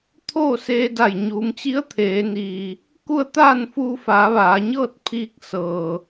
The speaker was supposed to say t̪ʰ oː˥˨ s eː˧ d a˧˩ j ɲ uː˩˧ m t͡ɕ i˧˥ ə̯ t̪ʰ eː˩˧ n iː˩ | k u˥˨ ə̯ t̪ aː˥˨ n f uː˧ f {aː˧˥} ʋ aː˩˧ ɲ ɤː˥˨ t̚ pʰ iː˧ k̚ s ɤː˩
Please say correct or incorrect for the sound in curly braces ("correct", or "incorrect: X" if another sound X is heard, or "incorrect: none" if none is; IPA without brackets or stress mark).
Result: incorrect: aː˩˧